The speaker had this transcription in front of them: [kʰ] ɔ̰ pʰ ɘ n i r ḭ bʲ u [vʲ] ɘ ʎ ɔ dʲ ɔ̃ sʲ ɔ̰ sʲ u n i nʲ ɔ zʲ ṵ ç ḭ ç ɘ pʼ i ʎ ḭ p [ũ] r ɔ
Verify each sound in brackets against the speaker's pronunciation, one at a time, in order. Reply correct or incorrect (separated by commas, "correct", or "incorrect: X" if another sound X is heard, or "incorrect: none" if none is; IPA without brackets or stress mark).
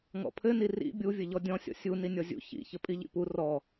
incorrect: ŋ, correct, incorrect: u